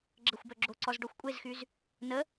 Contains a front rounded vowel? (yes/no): yes